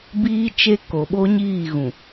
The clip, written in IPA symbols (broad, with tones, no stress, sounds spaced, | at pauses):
b iː˦ t͡ʃ e˦ k o˨ ɓ o˦ ɲ iː˦˨ ɣ ũ˨